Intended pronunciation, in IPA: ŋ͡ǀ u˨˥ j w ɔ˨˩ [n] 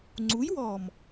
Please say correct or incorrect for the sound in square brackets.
incorrect